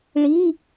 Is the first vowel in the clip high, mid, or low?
high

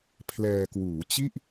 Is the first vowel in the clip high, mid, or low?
mid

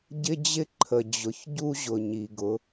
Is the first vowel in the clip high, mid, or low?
high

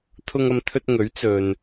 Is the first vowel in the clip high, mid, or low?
high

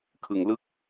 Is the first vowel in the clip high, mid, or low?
high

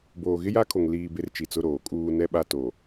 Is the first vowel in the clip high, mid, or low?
mid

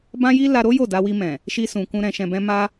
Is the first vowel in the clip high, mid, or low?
low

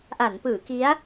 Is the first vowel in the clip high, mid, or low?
low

